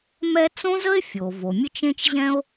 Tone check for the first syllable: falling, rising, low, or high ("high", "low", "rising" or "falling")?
high